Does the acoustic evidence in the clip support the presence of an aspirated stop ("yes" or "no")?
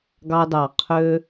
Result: yes